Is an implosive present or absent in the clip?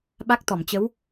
present